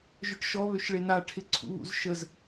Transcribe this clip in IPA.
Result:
ʒ œ ʈ ʃ ɔ β ø ʃ ɭ e n a ʈʰ ɪ ǀʰ ṵ β ṵ z ʃ ə z

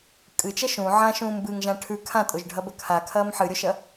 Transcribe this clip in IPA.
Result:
kʼ ɨ t͡ʃ ɐ ʃ ũ ʕ ã ʃ ũː m b ɨ ŋ ʒ ã ʈʰ ʉ kʰ ã tʼ o ʒ ɖʱ ɐ b ɐ kʰ a kʰ ɐː m ħ ɨ ɾʲ o ʃ ɐ

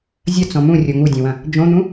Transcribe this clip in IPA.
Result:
zʲ ɐ t͡s ɔ̃ m ũ rʲ o ŋ u dʲ õ w ɐ̃ | d͡ʒ õ n̪ ũ

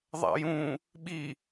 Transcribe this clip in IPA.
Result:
ðˤ a̰ j ũ | ɓ i

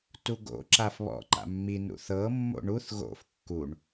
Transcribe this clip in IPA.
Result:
t u ɡ o̰ ǁ a f β ɔ̰ ǃ a̰ mː i n ṵ θ ɤ mː o̰ ɳ u θ ɣ o̰ f kː u ɳ

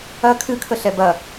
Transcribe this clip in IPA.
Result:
ɐ kʰ ɨ kʰ ə ɬ ɛ b ɐ

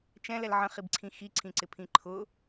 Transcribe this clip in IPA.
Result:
t͡ʃ ɛ̃ l ɛ l ʕ ə̃ χ i b ǀʰ ĩ x i ǀʰ ĩ ǀ ɪ pʰ ĩ ǃʰ ʊ

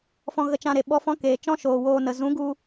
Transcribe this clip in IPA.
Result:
f ɔ̃˧ ɣ ə˧ t͡ʃ ã˧ ɾ e˨ ɓ ɔ˧ f ɔ̃˦ k eː˨ t͡ʃ ɔ̃˦ ʃ oː˨ w oː˧ n ə˨ z ũ˨˦ ɡ u˧

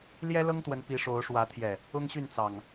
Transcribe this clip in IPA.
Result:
l j ɛ˦ l ɤ˦ ŋ t̪ w ə˨˦ n p i˨˦ ʂ o˨˦ ʊ̯ ʂ w ä˨˦ t̪ʰ j ɛ˨˩ | ʊ˦ ŋ ɕ y˥˨ n t͡s ɑ˨˩ ŋ

